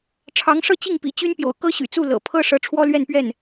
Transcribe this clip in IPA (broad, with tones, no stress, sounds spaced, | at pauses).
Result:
ʈ͡ʂʰ ɑ˧˥ ŋ ʂ ɤ˥˧ t͡ɕ i˥˩ ŋ p ḭ˨˩ t͡ɕ y˥ n p j o̰˨˩ ʊ̯ k ɤ˥ ɕ y̰˨˩ t͡s u˥˩ l ɤ̰˨˩ pʰ ɤ˥ ʂ ɤ˧˥ ʈ͡ʂʰ w ɔ˥ l ɥ ɛ˥˧ n p ɥ ɛ˥˩ n